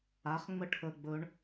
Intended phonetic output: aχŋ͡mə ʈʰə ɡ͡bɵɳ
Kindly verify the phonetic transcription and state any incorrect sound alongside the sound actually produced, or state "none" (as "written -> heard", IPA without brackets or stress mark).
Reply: none